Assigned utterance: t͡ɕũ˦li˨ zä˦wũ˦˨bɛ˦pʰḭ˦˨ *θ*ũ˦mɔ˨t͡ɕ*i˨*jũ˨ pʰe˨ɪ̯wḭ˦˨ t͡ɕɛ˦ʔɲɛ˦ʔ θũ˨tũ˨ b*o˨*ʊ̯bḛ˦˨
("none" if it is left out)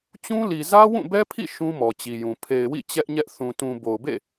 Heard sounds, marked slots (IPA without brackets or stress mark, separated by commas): ʃ, i˨, o˨